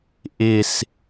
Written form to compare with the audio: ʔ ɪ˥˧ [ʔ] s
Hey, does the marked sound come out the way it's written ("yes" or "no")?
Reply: no